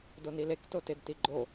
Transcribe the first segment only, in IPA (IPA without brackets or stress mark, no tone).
d